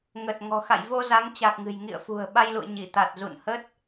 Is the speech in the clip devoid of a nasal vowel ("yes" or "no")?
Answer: yes